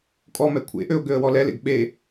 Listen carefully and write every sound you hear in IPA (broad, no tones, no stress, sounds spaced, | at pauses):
kʼ ɔ m ɛ kʷʰ ḛ ʔ ø ʊ̯ ɡ ø ə̯ w ɔ l ɛ l ḛ ɡ ɓ e